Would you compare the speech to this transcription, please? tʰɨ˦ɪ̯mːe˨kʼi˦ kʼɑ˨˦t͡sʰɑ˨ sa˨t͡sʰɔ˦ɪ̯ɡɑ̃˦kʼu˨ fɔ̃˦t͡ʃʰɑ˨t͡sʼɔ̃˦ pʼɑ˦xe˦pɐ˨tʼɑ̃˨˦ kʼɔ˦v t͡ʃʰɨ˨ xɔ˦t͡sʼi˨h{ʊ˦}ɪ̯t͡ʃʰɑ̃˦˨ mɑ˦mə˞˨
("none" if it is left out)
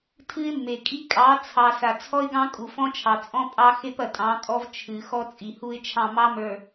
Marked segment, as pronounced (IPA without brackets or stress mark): u˦